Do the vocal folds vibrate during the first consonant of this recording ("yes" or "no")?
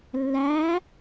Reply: yes